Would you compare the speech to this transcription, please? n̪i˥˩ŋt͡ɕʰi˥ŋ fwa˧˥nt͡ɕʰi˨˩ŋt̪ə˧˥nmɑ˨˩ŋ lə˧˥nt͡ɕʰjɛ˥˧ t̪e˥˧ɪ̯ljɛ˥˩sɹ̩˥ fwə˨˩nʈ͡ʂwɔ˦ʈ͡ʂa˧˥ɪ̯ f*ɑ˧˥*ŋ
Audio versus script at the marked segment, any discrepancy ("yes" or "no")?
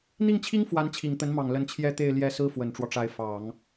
yes